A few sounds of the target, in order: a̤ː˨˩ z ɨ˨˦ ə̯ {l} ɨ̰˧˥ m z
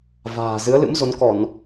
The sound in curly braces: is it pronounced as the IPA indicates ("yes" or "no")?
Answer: yes